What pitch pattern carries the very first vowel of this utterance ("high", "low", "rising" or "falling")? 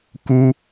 high